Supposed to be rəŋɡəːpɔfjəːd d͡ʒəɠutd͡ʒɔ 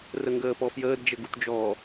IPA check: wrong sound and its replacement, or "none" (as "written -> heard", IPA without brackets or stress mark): ɠ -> ɡ